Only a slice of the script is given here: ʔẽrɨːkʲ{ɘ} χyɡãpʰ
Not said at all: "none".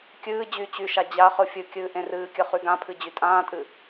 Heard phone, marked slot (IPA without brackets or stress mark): ɘ